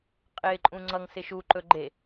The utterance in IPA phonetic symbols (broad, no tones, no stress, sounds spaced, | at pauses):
qʼ ɪː ǃʼ ũ ŋ͡ǀ ʌ ŋ s ɪ ʃ u ǃ ɵ ɡ͡ǃ e